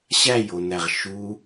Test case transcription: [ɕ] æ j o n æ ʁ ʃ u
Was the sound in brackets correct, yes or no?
yes